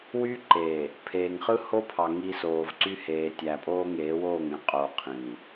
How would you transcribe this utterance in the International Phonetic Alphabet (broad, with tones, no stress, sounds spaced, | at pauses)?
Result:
w y˦ ǃ eː˨ | pʰ eː˨ ŋ χ ɯ˦ h o˦ pʰ ɑ˨ ŋ i˦ s oː˨ v ǀ y˦ h eː˨ tʲ æ˨ pʼ oː˦ ŋ eː˨˦ w oː˦˨ ŋ ẽ˦ qʼ o˨ qʰ ĩː˨